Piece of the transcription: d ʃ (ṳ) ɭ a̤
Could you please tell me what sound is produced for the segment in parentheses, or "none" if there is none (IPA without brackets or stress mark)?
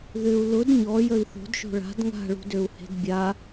o̤